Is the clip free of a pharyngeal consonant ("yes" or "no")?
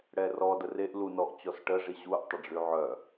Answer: no